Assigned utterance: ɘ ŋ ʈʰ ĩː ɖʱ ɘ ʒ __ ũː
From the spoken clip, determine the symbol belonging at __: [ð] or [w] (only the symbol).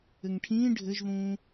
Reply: ð